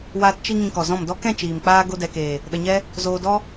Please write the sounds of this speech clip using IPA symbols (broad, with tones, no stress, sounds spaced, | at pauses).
w aː˧ t t͡ʃ i˧ ŋ ĩ˧ k ɔ˨ z ɔ̃˦˨ m d ɔ˦ k ɛ̃˦˨ t͡ʃ iː˨ m k͡p aː˧ ɡ o˧ d ɛ˨ k eː˨ | ɗ ə˧ ɲ ɛ˦ | z oː˧ d ɔ˦